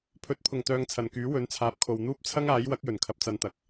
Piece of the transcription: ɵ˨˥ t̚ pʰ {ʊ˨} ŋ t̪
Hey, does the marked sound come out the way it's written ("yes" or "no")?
no